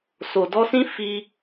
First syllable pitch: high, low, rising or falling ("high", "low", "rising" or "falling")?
low